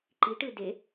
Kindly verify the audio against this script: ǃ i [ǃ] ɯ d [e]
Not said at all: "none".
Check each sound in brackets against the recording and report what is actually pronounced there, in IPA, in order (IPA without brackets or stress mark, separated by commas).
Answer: ʈ, e